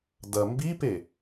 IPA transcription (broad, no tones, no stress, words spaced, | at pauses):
dɐ mbipe